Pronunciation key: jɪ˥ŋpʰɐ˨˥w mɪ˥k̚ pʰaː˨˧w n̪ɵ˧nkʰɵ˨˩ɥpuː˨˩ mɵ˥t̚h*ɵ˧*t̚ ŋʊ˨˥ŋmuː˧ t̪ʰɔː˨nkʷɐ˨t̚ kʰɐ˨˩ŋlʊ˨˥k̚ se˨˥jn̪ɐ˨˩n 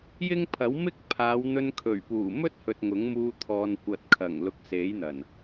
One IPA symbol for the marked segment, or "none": ɵ˨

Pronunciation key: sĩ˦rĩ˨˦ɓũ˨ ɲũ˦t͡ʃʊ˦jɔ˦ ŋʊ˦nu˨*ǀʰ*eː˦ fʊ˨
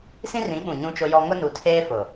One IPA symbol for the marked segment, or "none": tʰ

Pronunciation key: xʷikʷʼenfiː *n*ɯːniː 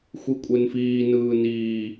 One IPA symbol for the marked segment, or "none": n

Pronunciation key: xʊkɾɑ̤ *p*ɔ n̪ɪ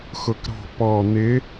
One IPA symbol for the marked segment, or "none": p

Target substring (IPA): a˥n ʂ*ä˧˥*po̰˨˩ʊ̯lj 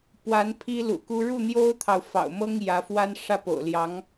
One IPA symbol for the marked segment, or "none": ä˥˩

